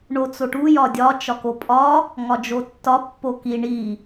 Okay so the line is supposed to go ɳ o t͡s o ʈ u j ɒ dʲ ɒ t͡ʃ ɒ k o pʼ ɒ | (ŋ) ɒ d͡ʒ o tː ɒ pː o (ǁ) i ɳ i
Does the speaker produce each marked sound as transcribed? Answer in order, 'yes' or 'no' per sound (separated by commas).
yes, no